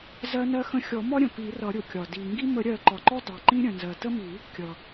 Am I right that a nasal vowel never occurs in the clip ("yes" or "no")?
no